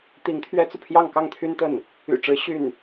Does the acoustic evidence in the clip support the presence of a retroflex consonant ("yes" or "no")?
yes